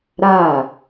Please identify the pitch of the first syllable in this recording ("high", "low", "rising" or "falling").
falling